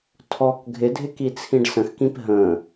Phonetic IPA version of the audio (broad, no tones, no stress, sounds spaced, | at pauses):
tʰ ɔ k ɡʱ ɪ dʱ ɪ k i t͡sʰ ĩ ɖ s ə̃ x k ĩ p ɦ ə̃ː